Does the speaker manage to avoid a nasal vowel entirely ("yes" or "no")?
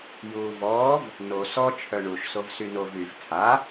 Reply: yes